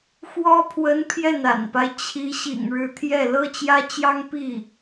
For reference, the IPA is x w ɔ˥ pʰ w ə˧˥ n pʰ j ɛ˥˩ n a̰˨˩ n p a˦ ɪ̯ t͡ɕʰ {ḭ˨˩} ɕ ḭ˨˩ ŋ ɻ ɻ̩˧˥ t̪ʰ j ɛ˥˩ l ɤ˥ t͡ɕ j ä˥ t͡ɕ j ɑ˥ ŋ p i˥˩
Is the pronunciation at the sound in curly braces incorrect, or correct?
incorrect